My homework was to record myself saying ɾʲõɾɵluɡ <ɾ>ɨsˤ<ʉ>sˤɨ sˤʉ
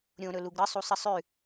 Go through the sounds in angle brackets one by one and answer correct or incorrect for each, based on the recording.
correct, incorrect: u

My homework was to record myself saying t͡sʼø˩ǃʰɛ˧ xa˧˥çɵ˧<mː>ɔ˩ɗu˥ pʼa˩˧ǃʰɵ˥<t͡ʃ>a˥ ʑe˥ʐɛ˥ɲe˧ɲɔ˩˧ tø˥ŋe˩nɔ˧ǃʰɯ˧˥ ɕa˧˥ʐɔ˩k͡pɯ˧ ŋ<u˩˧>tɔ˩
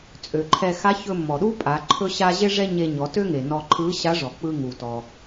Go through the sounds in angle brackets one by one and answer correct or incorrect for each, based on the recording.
correct, incorrect: ɕ, incorrect: u˩

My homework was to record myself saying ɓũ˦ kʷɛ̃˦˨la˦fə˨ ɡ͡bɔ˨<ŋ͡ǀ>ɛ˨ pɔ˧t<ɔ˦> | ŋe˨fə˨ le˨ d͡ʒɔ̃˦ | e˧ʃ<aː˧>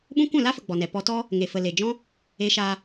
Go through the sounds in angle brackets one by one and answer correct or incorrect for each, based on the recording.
incorrect: n, correct, correct

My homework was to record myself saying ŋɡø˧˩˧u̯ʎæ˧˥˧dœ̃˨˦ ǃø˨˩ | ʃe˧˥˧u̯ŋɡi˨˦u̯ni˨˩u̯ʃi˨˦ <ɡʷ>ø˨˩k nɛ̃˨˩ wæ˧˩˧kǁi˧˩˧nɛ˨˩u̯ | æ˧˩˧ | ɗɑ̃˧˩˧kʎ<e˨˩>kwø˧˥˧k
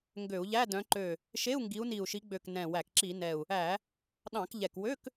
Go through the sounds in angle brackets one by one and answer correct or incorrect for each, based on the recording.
incorrect: ɡ͡b, incorrect: ɛ˨˩

